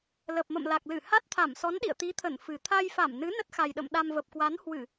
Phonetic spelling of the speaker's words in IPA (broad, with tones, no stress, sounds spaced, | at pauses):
l ə˨˩ p̚ m ə̰˧˨ m l a˨˩ k̚ l ɨ˧˩ h a˦˥ t̚ t̪ʰ a˧˩ m s ɔ˨˦ n ɗ ḭ˧˨ ə̯ t̪ i˨˦ t̪ʰ ə˧˩ n f ɨ˨˩ t̪ʰ a˧ j f a˧˩ m n ɨ˨˦ n ə˦˥ t̚ x a˨˩ j ɗ ə̰˧˨ m ɗ a˧ m v ə˨˩ p̚ k w a˨˦ n h w ɨ˧˩˨